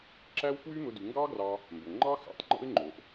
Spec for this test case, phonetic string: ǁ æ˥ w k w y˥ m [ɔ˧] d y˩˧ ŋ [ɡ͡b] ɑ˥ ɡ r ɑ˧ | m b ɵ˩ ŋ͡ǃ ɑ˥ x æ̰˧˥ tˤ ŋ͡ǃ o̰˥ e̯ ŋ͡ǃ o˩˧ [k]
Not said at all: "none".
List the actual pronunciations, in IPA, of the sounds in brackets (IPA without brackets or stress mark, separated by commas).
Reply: ɵ˧, ɡ, ʔ